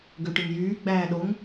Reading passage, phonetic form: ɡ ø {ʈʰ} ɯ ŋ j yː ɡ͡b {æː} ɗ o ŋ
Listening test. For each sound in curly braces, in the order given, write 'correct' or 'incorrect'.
incorrect, correct

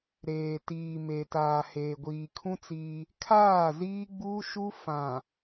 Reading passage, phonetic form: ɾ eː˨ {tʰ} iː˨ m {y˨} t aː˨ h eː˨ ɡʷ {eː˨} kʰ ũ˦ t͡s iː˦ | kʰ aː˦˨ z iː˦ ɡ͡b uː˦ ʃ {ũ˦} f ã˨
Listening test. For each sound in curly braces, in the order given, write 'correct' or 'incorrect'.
incorrect, incorrect, incorrect, incorrect

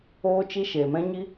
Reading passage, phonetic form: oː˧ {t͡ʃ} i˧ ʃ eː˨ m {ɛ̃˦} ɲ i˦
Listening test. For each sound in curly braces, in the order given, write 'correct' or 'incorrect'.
correct, correct

